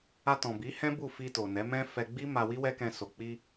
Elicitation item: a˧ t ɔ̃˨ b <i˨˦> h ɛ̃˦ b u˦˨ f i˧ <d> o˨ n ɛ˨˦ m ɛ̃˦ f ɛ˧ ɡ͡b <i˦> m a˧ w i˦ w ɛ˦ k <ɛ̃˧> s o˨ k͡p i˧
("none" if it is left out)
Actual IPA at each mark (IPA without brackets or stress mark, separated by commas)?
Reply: i˨˦, t, i˦, ɛ̃˧